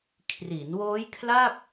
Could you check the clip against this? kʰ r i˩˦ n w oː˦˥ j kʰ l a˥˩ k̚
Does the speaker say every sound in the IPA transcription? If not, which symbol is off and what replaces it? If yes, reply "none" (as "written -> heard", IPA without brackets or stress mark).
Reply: none